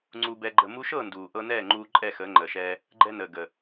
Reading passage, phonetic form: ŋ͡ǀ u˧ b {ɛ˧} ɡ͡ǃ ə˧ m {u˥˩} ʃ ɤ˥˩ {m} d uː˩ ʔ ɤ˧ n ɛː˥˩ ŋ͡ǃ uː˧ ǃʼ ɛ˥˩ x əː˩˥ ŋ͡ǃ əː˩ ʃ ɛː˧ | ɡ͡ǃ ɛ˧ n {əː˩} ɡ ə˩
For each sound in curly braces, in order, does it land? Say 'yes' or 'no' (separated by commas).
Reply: yes, no, no, yes